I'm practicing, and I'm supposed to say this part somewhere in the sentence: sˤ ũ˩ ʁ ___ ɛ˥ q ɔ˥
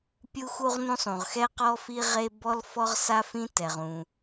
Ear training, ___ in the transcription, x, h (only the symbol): x